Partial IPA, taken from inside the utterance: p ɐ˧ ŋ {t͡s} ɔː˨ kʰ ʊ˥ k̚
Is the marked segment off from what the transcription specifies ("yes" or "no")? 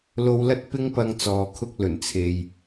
no